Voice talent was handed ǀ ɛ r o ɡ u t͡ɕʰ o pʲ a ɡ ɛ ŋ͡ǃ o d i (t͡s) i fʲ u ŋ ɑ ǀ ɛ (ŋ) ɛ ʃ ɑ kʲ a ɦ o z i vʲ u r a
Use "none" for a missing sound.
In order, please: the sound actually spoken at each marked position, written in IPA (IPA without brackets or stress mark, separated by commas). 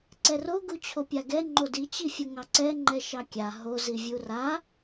t͡ɕ, ŋ͡ǃ